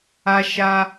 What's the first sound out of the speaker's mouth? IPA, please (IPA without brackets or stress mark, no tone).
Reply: a